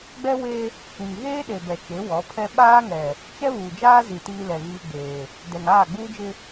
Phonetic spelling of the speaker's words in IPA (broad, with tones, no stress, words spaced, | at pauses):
ɡ͡bɛ˦ we˦ | ĩ˨ŋ ɣeː˦ɗe˨ bɛ˨t͡ʃe˨˦wɔ˨˦pʰɛ˦ ɓaː˦ŋɛ˨ | t͡ʃɛ˦βuː˨d͡ʒaː˦zi˨ tiː˦lɛ˨ɣiː˦ɡ͡beː˨ | dɛ˨ŋaː˦˨ɡ͡buː˦d͡ʒɪ˦